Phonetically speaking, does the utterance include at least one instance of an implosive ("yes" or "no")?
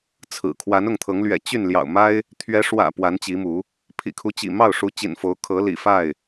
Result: no